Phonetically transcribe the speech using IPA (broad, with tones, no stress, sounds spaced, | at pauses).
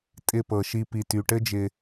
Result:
tʼ ɪ˧ p ɤ˨ ʃ i˧ p i˨ t y˨ ʈ ɘ˦ d͡ʒ ɪ˧